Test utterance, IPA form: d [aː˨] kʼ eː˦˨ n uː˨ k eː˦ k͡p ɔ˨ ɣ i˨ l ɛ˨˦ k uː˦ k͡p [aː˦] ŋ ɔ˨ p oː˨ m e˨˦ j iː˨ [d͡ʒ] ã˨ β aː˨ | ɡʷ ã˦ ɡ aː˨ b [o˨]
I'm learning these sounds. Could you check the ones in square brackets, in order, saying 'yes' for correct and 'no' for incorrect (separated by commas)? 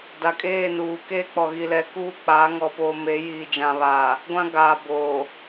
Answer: no, no, yes, no